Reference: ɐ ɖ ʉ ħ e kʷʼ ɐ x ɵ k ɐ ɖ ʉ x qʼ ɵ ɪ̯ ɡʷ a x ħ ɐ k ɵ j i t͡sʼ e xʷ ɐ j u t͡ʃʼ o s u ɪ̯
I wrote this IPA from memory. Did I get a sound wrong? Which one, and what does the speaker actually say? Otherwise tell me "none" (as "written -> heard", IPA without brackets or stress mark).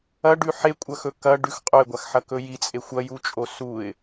none